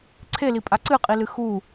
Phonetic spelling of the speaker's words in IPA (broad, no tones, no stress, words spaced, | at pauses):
ǀʰelipʼa ǀɨqʼilɨ xu